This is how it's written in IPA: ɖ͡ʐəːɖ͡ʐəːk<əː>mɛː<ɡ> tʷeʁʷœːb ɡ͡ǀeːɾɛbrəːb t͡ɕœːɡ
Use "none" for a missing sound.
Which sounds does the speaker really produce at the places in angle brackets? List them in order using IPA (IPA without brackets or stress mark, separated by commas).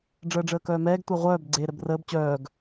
œː, ɡ